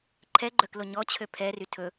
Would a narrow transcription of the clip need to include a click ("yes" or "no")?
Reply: yes